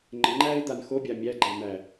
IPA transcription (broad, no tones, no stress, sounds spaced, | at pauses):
ŋ͡ǃ ɘ ŋ͡ǃ æː ɪ̯ d̪ a n x o bʲ a mʲ æ ɡ͡ǃ æ m æ